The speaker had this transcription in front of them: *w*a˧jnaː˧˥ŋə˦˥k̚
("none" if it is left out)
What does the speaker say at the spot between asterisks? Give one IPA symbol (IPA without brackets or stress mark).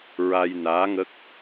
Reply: ɹ